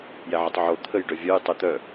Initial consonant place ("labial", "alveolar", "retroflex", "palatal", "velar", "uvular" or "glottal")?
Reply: palatal